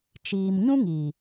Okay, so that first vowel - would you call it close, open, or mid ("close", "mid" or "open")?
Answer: close